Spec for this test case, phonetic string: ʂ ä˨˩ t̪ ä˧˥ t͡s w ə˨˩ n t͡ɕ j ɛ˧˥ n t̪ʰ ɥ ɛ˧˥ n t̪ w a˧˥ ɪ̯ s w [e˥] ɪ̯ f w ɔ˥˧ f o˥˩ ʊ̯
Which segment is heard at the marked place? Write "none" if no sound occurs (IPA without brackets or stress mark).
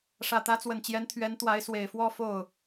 e˨˩